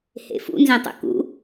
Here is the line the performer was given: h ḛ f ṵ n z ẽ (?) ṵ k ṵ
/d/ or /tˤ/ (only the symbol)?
tˤ